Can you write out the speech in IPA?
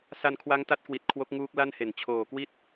s a˧ n kʰ w a˦˥ ŋ t a˦˥ t̚ k w i˨˩ t̚ kʰ w o˦˥ k̚ ŋ uː˦˥ k̚ l a˥˩ n h e˨˩ n t͡ɕʰ oː˨˩ k w i˥˩ t̚

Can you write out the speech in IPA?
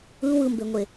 ɯ w ɯ m b e ŋʷ e

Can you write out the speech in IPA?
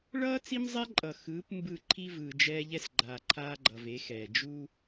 ɭ ʌː˦ t͡s i˦ m zˤ ɛ˦ ǃʼ ʌ˨ x ɯː˨˦ p m b ɯ˦˨ ǃʰ i˦ v ɯː˨ d͡ʒ ɛː˦ ʎ ɛ˦ s ɡ͡ǃ aː˨ ǃʰ aː˦ ɡ͡ǃ ʌ˨ v e˨˦ x ɛː˨ d͡ʒ u˦

